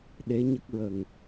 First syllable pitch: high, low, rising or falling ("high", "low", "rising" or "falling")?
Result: rising